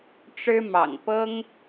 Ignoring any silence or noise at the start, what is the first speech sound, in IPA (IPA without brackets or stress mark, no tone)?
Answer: ʈ͡ʂ